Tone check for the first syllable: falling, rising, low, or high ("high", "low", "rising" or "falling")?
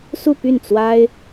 falling